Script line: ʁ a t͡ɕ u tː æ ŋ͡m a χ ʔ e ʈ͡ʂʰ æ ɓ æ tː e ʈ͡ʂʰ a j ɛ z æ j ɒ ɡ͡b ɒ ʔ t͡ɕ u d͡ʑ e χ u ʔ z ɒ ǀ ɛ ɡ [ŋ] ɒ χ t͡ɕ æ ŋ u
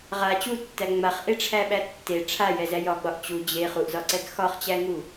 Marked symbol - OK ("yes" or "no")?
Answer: no